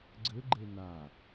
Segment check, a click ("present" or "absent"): present